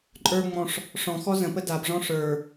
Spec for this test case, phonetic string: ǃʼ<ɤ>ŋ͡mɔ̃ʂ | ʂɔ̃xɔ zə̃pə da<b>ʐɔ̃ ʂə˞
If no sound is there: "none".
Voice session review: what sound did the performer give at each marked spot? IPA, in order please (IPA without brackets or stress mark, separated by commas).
ə˞, b